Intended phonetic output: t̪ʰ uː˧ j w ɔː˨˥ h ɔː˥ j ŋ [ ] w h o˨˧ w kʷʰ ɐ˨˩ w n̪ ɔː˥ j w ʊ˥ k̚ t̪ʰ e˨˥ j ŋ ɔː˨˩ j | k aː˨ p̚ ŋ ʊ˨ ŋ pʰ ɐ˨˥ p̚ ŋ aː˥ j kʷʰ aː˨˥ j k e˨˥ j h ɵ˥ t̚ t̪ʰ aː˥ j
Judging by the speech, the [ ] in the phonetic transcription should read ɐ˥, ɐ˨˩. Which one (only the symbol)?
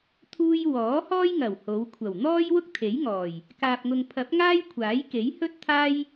ɐ˨˩